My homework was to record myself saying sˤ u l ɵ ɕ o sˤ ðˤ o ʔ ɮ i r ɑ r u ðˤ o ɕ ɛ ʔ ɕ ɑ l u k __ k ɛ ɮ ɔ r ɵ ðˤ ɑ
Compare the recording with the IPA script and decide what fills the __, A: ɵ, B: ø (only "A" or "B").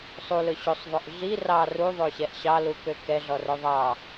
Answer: B